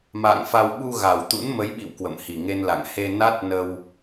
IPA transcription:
m a̰ː˧˨ ŋ f a˧ w ɓ u˧ ɣ a˨˩ w t̪ ṵ˧˥ n m ə˨˦ j ɓ ḭ˧˨ w k w ə̰˧˨ m h i˨˩ ŋ e˧ n l a̰˧˨ ŋ h e˧ n a˦˥ t̚ n ə˧ w

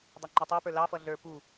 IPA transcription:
dˤ ɛ ŋ͡ǃ ə˞ tˤ ə˞ p ə˞ l ɑ f ʌ ɮ ə˞ p u

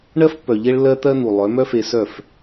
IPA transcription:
ɳ ɜ˦ f pː œ˨ ʎ e˦ ɭ lː ɜ˦ t̪ ɜ˦ n̪ u˨ lˠ œ˨˦ m œ˦ f e˧ s œ˦˨ f

